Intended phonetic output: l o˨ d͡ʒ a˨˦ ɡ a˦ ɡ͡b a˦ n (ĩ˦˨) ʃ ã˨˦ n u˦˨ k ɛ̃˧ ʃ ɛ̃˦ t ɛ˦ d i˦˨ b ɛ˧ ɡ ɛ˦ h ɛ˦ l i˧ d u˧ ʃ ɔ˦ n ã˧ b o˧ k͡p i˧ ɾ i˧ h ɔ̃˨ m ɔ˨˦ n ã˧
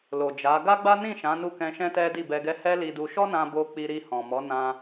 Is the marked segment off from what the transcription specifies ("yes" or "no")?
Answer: no